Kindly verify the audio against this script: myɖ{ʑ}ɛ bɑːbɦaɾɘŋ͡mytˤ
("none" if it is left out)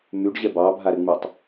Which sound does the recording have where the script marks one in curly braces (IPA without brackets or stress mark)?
ʑ